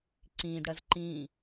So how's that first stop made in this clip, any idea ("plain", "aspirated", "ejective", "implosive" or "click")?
click